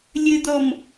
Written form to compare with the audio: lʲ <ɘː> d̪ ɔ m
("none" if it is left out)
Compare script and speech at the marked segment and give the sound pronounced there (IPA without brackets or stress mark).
ɘ